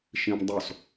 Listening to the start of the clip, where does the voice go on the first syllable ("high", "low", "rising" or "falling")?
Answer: high